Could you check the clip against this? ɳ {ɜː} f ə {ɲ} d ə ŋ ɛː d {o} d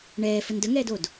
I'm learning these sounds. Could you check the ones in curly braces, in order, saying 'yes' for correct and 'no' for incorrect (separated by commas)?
no, no, yes